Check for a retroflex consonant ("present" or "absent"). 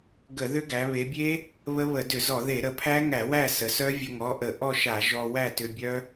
absent